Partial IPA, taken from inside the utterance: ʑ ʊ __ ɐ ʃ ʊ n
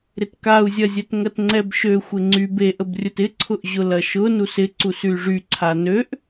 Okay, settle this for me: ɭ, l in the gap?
l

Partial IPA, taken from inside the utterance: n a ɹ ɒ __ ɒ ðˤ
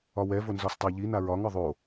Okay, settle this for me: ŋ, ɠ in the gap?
ŋ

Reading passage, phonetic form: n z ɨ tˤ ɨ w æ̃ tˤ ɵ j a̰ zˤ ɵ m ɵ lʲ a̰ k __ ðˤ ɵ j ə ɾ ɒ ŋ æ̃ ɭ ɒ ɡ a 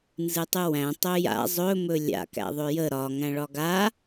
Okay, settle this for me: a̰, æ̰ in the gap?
æ̰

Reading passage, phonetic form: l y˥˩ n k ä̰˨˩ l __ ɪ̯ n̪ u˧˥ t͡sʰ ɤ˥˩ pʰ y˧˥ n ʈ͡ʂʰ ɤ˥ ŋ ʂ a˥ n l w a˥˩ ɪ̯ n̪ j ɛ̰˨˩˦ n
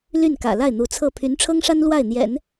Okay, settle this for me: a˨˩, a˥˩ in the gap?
a˥˩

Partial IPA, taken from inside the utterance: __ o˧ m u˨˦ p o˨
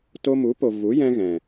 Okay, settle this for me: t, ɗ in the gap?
t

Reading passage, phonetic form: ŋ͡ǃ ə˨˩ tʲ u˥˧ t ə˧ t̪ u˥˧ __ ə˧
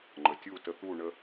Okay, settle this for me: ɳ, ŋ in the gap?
ɳ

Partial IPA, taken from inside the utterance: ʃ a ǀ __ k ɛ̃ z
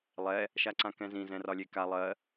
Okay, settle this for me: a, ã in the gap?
ã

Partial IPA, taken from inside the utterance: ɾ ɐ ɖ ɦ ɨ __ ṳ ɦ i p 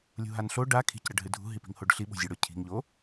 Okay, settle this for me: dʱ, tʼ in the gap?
dʱ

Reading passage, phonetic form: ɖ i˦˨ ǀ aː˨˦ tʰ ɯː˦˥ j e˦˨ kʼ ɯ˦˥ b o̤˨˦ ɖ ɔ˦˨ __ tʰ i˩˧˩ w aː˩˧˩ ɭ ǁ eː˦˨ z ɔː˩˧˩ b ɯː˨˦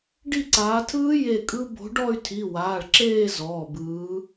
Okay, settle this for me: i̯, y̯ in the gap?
y̯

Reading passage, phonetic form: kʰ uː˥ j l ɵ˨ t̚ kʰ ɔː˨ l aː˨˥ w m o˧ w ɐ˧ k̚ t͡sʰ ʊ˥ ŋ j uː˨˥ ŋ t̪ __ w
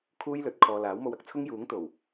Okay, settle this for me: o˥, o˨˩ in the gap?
o˨˩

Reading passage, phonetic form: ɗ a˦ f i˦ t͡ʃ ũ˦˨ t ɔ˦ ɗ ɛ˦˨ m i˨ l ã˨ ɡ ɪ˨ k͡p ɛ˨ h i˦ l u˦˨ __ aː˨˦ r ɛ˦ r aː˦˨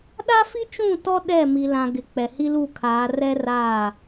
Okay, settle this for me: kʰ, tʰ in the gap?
kʰ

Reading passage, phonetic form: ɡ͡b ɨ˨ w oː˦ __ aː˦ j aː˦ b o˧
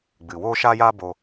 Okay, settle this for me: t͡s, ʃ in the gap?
ʃ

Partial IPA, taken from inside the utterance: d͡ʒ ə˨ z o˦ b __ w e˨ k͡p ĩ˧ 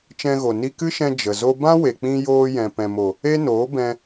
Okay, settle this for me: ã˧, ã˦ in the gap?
ã˦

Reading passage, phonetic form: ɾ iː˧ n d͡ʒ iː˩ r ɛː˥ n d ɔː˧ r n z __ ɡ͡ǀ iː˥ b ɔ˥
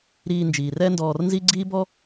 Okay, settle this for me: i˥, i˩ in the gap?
i˥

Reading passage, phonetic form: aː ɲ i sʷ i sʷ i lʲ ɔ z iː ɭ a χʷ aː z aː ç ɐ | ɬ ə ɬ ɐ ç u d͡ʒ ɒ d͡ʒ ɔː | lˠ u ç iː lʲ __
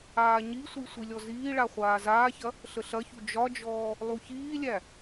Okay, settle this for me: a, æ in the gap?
æ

